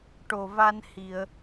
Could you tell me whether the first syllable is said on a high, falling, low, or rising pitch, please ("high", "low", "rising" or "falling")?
low